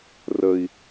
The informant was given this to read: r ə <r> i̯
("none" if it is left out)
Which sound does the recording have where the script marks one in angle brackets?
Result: none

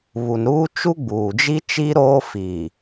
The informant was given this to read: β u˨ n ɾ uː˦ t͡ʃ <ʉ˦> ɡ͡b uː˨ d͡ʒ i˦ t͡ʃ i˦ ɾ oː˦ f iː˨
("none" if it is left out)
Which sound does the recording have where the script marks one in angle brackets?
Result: u˦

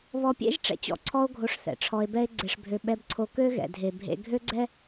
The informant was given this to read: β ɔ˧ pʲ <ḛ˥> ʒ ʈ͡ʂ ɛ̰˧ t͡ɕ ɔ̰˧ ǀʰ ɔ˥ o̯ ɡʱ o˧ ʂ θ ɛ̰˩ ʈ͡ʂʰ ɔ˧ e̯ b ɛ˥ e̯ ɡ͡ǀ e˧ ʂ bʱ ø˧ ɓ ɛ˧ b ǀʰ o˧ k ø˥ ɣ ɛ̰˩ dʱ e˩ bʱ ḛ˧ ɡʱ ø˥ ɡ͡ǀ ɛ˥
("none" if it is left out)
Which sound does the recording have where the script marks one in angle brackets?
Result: ḛ˥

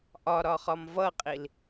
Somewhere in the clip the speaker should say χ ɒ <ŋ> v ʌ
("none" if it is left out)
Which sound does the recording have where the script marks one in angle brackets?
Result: m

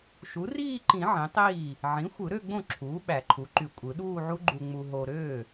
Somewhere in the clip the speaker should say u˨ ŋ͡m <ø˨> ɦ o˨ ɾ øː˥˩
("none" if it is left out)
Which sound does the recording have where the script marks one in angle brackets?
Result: u˨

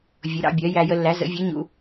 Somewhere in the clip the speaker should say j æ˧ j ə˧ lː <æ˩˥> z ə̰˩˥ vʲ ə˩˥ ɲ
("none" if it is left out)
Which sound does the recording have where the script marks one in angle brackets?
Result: æ˩˥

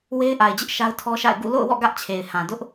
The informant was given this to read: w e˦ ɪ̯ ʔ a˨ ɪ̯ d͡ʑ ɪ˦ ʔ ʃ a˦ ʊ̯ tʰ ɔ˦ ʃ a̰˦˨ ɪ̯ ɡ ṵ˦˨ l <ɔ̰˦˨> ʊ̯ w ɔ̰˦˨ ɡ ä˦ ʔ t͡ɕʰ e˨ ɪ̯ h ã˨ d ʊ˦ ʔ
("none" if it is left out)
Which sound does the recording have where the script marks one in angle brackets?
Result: o̰˦˨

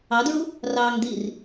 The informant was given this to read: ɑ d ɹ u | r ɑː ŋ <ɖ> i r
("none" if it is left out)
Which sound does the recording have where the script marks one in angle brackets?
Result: d̪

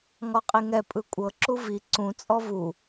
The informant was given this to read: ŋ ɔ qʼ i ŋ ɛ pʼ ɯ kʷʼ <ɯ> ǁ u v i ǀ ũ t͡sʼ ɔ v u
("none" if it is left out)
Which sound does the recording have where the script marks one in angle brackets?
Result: ɤ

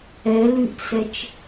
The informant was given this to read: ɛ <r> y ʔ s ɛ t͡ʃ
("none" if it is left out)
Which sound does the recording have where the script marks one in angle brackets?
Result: l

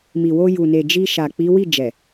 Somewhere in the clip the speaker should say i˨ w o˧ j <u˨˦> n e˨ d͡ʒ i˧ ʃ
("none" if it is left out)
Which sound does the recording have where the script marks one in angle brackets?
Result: u˨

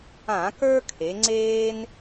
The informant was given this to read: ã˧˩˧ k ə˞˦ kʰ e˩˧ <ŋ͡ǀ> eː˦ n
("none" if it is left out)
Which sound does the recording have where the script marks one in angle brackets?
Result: ŋ͡ǀ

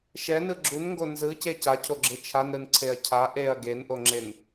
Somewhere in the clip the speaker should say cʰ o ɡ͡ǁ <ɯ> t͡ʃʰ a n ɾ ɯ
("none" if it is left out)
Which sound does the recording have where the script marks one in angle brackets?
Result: ɯ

